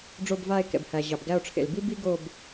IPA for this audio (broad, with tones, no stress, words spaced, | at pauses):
ɖ͡ʐo˦˨bva˦˨e̯kɛ̰˩bhæ˩ ʑɑ˩bɡæ˦˨o̯ʈ͡ʂʰḛ˩l bi˥bi˥ɡo˦˨b